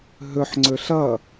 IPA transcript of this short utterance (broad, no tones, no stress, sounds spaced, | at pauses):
ɦ ɵ ħ ŋ͡ǀ ɵ ɬ ʌ